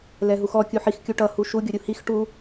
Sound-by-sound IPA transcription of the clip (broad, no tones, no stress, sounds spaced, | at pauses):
l ɛ ɦ u x ɔ kʲ u ħ i x kʲ u ʈ ʌ h u ʃ u ɡʲ o ɾʲ u h i x ʈ u